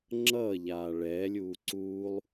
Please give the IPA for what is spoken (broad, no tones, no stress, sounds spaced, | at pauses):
ŋ͡ǁ ʌː ʎ aː ɭ ɛː lʲ uː ǀ uː lˠ